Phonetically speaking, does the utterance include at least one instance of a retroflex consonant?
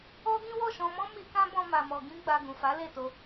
no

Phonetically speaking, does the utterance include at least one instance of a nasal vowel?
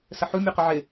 no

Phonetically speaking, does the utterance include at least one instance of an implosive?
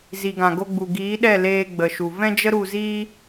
yes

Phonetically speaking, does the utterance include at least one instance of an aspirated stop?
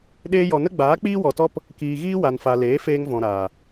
no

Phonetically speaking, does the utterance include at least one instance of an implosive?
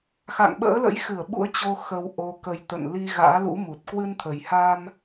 yes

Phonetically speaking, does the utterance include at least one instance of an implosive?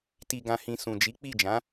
no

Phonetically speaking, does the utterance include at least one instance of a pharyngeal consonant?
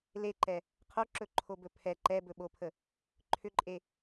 no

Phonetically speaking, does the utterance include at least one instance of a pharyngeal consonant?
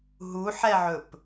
yes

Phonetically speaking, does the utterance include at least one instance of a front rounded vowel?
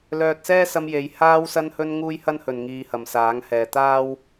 yes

